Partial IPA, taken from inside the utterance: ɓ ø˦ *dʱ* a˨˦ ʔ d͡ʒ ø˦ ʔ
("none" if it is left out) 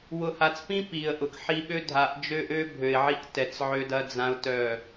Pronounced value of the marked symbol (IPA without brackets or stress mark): dʱ